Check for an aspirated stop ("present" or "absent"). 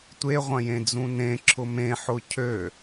present